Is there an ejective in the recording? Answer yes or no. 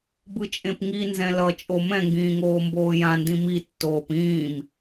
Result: yes